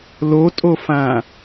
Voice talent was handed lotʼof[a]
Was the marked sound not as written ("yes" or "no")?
yes